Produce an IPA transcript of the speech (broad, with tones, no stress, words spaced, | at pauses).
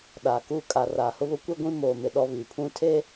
ɗaː˨kuː˦ kʼa˨raː˨hʊ˦βʊ˦ kʷi˦ ɡʷĩ˦moː˨mɪ˨ ɗɔ˦βi˨pʰũ˦ tʰe˦